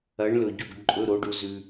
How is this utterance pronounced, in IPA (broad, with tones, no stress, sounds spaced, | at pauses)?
ɐ˨˥ ɳ l ɵ˧˩ ɟ u˥˩ ɡ ǃʼ ɵ˧˥˧ ɾ o˨˥ ɖ u˧ z ʉ˧